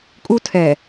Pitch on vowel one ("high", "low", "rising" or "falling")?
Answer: high